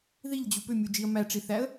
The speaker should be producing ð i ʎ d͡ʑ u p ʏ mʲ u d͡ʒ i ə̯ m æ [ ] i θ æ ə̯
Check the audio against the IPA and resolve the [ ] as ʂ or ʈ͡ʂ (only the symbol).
ʈ͡ʂ